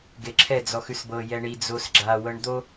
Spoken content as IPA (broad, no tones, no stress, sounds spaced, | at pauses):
ɡ e ǁʰ ɛ d͡z ɔ x ʉ s b ɤ j ɛ ɳ i d͡z o s ɡ͡ǁ a w ɤ ɳ d̪ o